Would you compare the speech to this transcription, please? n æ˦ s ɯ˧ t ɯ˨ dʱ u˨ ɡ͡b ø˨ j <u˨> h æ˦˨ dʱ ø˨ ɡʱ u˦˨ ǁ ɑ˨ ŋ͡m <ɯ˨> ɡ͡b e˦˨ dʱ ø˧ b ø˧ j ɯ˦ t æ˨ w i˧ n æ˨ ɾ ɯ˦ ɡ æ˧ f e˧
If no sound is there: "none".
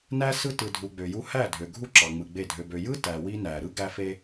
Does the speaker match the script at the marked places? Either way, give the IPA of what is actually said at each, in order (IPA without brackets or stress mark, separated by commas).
u˧, ɯ˨